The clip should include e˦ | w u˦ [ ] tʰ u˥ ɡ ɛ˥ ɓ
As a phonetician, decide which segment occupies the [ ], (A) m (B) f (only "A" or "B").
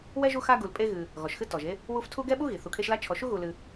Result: B